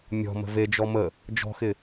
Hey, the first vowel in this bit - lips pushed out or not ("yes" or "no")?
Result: yes